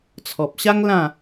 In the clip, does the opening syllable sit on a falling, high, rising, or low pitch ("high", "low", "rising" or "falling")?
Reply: low